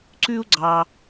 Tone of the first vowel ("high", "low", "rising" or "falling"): high